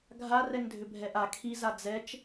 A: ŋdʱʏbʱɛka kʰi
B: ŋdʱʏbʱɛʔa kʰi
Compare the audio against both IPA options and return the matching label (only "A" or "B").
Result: B